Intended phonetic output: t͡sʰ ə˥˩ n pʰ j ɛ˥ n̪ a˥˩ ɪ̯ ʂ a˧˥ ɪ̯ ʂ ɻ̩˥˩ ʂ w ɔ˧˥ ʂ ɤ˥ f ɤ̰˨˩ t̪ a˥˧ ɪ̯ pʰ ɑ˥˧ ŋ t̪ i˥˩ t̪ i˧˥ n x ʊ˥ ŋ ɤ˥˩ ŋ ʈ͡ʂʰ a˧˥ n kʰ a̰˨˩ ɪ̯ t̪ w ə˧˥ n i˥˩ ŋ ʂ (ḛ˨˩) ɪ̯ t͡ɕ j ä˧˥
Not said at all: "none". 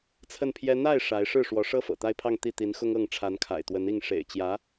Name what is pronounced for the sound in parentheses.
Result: ḛ˨˩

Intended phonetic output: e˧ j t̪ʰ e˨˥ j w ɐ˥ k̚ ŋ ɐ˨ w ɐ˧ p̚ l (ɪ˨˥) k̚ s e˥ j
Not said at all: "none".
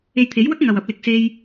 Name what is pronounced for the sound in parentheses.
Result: ɪ˨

